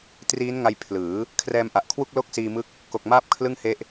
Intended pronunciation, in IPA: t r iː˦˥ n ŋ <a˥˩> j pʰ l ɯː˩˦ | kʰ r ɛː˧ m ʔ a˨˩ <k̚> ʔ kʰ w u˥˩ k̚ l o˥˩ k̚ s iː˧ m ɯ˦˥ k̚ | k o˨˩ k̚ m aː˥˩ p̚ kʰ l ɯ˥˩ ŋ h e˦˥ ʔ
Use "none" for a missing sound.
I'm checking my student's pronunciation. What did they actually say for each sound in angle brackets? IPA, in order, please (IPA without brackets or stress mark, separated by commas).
a˧, none